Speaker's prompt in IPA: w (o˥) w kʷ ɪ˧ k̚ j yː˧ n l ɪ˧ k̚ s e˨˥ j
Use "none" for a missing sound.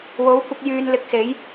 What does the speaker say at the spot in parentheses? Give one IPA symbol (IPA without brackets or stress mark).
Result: o˨˥